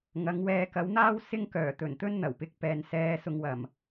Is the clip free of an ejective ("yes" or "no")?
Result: yes